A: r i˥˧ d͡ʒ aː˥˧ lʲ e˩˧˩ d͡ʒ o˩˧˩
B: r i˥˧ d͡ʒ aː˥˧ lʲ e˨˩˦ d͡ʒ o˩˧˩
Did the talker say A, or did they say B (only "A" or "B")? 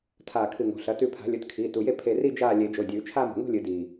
B